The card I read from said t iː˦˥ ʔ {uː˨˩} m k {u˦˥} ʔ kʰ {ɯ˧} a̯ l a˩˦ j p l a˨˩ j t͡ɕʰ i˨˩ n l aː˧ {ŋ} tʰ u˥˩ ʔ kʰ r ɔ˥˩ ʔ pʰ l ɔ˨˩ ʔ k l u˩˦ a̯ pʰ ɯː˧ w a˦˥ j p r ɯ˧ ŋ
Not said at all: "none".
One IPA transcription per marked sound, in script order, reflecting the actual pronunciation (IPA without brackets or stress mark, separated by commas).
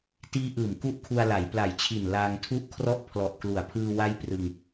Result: ɯː˨˩, u˦˥, u˧, ŋ